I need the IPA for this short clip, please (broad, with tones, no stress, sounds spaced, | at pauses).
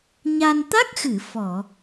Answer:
ɲ a˧ n t̪ a˦˥ k̚ x ɨ˨˩˨ f ɔ˨˩˨